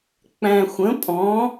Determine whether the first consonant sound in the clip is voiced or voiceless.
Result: voiceless